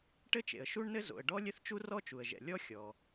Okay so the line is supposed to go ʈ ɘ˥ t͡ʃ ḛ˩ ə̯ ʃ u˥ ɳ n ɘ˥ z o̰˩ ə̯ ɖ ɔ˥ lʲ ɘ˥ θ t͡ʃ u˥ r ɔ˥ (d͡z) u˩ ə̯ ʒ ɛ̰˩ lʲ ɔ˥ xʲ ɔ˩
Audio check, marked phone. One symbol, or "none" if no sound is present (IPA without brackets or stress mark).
t͡ʃ